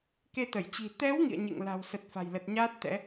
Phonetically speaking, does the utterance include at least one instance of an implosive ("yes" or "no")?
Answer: no